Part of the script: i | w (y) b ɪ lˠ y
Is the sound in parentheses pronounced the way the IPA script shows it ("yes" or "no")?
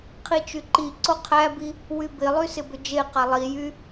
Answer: yes